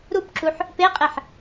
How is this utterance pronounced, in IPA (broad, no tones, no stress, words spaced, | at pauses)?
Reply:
ɾupǁuħ | peqʼeħ